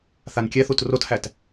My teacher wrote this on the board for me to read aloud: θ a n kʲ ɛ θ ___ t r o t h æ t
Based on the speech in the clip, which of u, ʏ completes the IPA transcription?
u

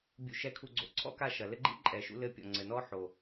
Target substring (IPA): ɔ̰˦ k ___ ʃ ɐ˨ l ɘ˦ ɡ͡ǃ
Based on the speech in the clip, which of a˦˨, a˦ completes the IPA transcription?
a˦˨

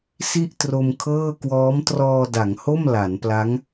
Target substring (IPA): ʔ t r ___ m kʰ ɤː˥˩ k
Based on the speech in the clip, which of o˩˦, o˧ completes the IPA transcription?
o˧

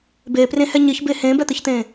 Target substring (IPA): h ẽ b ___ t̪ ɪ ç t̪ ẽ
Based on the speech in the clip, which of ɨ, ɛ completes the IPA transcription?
ɛ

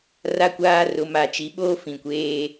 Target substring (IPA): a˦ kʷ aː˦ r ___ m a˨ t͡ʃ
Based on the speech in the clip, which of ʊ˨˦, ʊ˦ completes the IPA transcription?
ʊ˨˦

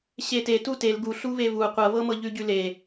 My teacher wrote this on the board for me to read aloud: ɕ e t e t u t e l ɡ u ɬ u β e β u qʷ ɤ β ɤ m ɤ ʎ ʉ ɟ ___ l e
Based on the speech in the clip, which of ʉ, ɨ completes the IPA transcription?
ʉ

